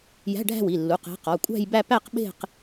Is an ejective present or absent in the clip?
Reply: present